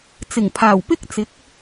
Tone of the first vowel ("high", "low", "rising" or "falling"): low